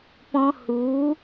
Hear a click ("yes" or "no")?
no